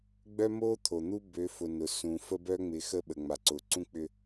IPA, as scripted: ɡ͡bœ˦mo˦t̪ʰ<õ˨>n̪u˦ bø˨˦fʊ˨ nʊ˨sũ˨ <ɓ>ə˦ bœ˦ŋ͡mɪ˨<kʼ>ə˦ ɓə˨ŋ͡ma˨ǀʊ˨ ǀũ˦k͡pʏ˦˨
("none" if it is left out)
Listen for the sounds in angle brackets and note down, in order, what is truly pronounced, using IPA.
o˨, f, x

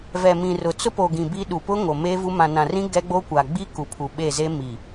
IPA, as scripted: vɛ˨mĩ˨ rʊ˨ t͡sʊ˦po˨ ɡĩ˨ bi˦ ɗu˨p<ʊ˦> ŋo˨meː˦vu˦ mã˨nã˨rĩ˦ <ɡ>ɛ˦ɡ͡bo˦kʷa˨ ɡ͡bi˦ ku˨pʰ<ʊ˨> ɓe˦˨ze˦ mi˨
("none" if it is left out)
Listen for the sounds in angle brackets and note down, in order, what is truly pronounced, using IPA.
ʊ˦, ɡ, u˨

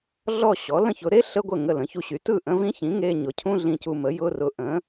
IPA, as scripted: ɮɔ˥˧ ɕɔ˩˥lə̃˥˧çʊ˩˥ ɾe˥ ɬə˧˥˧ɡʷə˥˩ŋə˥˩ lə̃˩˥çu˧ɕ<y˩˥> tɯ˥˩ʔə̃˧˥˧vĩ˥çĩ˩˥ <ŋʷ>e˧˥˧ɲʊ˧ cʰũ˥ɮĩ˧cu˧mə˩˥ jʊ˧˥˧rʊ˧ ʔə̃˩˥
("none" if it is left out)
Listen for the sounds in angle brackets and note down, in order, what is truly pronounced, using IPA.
y˩˥, ŋ

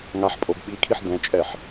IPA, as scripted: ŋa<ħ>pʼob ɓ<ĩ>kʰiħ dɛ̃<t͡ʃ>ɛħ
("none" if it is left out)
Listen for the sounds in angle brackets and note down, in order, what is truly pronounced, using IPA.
ħ, i, t͡ʃʼ

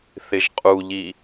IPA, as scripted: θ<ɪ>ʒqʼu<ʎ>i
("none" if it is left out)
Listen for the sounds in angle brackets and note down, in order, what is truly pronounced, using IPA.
ɪ, ʎ

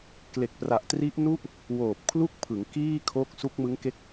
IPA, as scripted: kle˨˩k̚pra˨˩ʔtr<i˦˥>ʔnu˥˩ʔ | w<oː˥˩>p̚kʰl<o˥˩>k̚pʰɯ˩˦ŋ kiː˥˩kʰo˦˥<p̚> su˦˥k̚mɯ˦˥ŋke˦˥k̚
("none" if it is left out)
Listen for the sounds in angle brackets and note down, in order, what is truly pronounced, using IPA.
i˦˥, oː˨˩, u˥˩, k̚

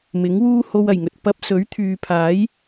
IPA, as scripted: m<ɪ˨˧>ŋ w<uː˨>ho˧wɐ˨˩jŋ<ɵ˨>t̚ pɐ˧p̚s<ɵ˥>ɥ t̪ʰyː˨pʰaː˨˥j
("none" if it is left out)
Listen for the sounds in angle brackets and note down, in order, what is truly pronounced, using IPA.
ɪ˨˥, uː˥, ɵ˨, ɵ˨˥

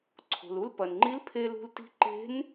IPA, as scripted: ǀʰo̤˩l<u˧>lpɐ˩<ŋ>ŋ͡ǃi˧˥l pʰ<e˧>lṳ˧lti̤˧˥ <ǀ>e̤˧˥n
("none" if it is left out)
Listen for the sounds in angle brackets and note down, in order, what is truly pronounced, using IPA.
u˧, n, e˧, ǃ

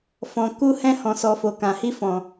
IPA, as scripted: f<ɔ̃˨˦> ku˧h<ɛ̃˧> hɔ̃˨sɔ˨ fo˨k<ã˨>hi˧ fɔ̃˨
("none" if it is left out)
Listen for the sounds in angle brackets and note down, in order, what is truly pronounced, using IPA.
ɔ̃˨, ɛ̃˧, ã˨

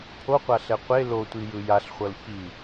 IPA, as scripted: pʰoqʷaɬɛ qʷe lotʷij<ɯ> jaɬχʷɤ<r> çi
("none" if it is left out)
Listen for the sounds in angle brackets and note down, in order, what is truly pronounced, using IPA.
ɯ, l

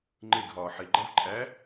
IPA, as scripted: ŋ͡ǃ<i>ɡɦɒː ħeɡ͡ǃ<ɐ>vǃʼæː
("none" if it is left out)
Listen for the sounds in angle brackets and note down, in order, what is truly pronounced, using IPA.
e, æ

